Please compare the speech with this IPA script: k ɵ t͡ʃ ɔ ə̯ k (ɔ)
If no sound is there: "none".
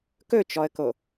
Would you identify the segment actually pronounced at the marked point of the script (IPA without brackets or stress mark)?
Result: o